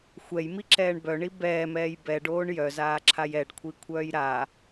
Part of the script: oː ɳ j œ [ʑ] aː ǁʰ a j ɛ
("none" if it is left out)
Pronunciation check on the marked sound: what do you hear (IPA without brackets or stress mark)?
z